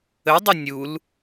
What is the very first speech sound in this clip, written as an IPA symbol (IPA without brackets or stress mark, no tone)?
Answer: ə